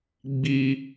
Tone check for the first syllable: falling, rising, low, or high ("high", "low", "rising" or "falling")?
high